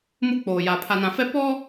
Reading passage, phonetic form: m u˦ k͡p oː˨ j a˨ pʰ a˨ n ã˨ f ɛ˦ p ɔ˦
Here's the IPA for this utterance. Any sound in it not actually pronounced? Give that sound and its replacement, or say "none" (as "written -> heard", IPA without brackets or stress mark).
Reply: none